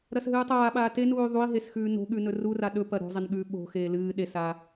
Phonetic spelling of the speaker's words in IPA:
ɾ ɐ s ɦ ɨː tˤ aː ɓ aː t e n uː y̯ ðˤ u i̯ ɦ e s x ʉː n o̤ ɠ ʉ n ɵ r u r a ɗ ɵ p ɐ ɾ o̤ zˤ e n ɠ ʉː ɓ o̤ x eː l ɨː ɗ e s a

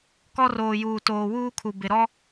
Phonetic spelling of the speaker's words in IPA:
k ɔ˦ r oː˨ j uː˨ t oː˨ w uː˦ kʰ u˨ b ɪ˨ ɾ ɔ˦

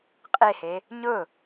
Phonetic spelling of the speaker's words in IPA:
qʼ e h e | ɲ ʊ

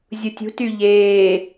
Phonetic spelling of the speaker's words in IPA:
zʲ u tʲ ṳ t y ʎ eː

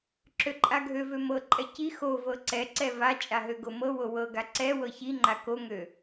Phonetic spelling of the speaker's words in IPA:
ǁ ø ǃʼ a ɡʱ ø v ø m ɤ ǃʼ ɛ c i x o v ɤ ǀ ɛ ǀ ɛ v a t͡ʃʼ a ɦ ø ɡ o m ɤ w o w ɤ ɡ a ǀ ɛ w ɤ ç i ŋ͡ǃ a k o ŋ ø

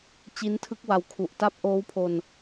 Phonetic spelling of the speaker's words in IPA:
t͡ɕ i˦˥ n tʰ ɯ˦˥ k̚ w a˧ w kʰ u˨˩ ʔ t a˥˩ p̚ ʔ oː˦˥ w pʰ o˧ n

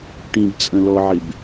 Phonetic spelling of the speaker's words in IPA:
ʈ ĩ b t͡sʼ ə̃ l ɔ ʕ ɪ b

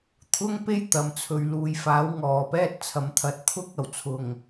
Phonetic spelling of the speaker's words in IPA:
t̪ʰ ʊ˥ ŋ p e˥ j t̪ ɐ˨˧ m t͡sʰ ɵ˧ ɥ l uː˨ j f aː˨˥ w ŋ ɔː˨ p ɛː˥ t̚ t͡sʰ ɐ˧ m t̪ʰ ɐ˧ t̚ t̪ʰ ʊ˥ k̚ ɐ˨˩ w t͡sʰ ʊ˨ ŋ

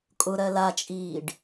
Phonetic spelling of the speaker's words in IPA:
kʼ ʊ ɾ ɜ l a t͡ʃʼ iː ɖ

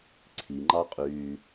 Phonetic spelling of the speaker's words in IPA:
ǀʰ i ŋ͡ǃ ɑ qʼ yː

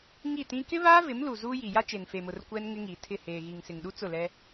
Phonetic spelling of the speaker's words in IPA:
ŋ i˦˨ t ĩ˦ k ɪ˦ β aː˦ v ɪ˨˦ m l u˨ z uː˦ j i˨ j a˦ t͡ʃ e˨ n f e˨ m ʊ˨ r kʷ ɛ˦ n ŋ ɪ˦ ŋ i˨ tʰ ɪ˦˨ h eː˨ ɣ i˨ ŋ s ɪ˨ ŋ ɗ u˦ t͡s ʊ˦˨ l ɛ˦

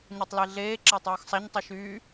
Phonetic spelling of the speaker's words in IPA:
ɲ ɔ tˤ l e ɮ eː ǁ ɪː tˤ oː x sˤ a ɲ tˤ y ʃ yː

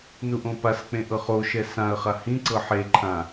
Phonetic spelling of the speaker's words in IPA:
n u ʔ õ p a s k͡p ẽ ʔ ɤ χ o ʃ ɛ s ã ə̯ χ a h ĩ ǀ ɤ ħ e ǃʰ ã

